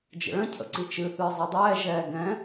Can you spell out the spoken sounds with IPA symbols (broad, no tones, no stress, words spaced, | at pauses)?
d͡ʒə̰ɭə̃ cʰə̰ǀit͡ʃɨ θɨːzˤɤdˤɛː ʒɛːɡɛ̃